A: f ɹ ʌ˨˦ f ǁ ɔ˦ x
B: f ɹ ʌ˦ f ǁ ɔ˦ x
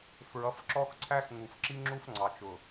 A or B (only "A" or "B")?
A